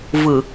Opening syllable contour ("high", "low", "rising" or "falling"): low